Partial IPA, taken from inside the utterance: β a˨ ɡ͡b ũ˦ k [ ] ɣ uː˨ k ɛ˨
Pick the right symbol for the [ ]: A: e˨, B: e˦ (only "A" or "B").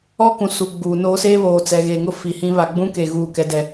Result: A